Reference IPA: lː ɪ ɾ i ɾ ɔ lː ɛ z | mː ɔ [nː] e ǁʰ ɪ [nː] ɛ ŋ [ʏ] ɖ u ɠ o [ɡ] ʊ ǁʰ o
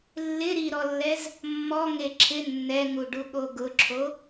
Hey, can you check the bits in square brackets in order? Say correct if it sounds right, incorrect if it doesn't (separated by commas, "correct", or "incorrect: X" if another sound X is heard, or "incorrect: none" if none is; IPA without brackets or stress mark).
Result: incorrect: ŋ, correct, incorrect: u, correct